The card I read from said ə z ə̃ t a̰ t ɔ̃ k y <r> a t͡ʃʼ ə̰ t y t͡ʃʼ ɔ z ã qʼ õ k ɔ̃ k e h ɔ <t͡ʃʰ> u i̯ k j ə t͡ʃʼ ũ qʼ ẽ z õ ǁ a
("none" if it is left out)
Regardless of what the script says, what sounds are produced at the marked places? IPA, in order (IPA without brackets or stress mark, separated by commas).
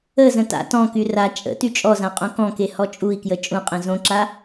r, t͡ʃʼ